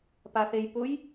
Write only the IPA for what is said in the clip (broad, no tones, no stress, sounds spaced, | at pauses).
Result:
p a θ e j p ʊ j